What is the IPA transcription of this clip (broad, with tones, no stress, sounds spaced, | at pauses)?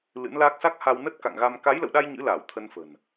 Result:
l ɨ̰˧˥ n l aː˦˥ k̚ s a˦˥ k̚ h a˧ w n ə˦˥ t̚ k a̰˧˨ ŋ ɣ a˧ m k a˨˦ j l ə̰˧˨ w ɗ a˧ j ɲ ɨ̰˧˥ l aː˧˩ w t̪ʰ ə˧ n f ə̤˨˩ n